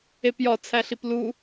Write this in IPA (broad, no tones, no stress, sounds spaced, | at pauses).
e p j ɒ t͡sʰ æ ɬ i p l u